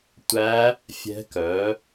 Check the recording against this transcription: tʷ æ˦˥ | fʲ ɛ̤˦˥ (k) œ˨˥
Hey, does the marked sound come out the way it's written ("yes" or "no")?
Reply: yes